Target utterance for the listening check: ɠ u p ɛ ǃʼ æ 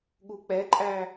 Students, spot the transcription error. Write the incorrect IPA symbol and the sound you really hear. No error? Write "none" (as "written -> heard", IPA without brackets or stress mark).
p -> k͡p